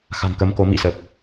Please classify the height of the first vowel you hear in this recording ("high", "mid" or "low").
low